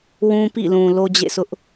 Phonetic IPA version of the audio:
w ũ˦ p ḭ˦˨ l ũ˨ l o˦ d͡ʑ ḛ˦˨ sʰ ʊ˦ ʔ

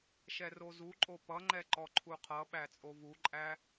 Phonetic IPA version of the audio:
ʃ ɛ r o z u ǃʼ o p ʌ ŋ͡ǃ ɛ ǃ ɔ ǃʰ u qʰ ʌ ɓ æ t͡sʼ o v u ǃʼ æ

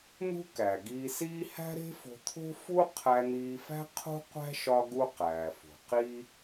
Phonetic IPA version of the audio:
n̪ ṳ˥ k æ˩ ɡ iː˧ s iː˥ h æ̤˥ ɾ e̤˥ f o̤˧ t̪ʰ o̤˥ f u˥ qʰ æ˧ n̪ iː˧ f æ̤˥ qʰ ṳ˥ qʷ æ̤˥ ʃ ɒ˥ ɡ u˥ q æː˩ f o̤˩ q i˥

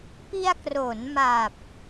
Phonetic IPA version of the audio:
p i˧ a̯ k r o˩˦ n m a˨˩ p̚

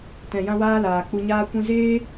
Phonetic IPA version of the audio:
t ɛ̃˨ j ã˦ w aː˦ l aː˨ k͡p u˧ ɲ aː˦ kʷ ĩ˦ z eː˦

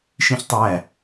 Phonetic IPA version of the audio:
ʃ ĩ ç tˤ æ

